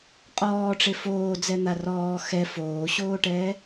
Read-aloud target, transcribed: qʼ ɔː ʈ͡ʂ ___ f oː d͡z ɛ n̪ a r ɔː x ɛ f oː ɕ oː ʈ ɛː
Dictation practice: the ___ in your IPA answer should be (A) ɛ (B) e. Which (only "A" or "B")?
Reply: B